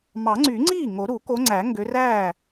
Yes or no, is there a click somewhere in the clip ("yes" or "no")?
yes